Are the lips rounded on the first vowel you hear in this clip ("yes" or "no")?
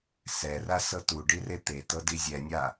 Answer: no